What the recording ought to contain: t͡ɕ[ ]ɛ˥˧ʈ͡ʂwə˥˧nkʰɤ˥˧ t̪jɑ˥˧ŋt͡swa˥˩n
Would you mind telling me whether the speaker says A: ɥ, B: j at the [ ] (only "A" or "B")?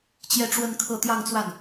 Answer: B